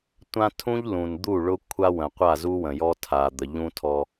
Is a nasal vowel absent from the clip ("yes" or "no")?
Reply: no